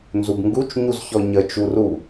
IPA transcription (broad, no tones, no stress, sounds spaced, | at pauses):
n z u b ŋ ɡ u t͡ʃ ɲ u z ç ɔ ɲ ə t͡ʃ u r u